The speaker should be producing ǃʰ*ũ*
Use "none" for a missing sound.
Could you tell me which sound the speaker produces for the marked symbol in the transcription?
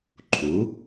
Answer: u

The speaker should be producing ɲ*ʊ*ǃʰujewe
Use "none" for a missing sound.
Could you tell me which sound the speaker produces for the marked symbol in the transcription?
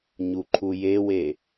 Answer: u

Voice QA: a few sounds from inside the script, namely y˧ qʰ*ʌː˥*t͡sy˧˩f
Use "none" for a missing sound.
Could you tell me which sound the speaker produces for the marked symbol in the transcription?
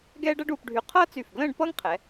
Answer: ʌː˥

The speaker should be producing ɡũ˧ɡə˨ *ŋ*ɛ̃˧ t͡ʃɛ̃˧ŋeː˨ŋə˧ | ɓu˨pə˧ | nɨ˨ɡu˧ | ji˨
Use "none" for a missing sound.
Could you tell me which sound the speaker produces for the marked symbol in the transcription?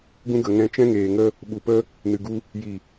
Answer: ŋ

